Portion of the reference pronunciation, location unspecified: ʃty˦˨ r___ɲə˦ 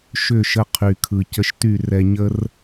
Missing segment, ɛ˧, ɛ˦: ɛ˧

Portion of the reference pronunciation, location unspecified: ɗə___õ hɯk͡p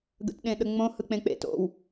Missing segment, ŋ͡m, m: ŋ͡m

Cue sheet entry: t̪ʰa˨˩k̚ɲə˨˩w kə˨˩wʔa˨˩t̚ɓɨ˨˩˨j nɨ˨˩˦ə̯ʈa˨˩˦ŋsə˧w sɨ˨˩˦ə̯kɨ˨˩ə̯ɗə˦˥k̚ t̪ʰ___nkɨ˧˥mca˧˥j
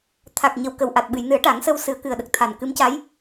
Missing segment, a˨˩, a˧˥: a˨˩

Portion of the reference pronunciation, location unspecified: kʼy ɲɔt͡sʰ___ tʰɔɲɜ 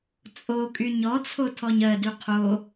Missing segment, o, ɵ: o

